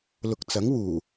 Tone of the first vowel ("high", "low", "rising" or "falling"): low